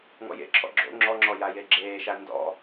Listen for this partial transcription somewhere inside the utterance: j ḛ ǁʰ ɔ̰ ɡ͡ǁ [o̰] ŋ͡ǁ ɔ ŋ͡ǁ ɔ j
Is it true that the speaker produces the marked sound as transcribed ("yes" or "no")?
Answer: yes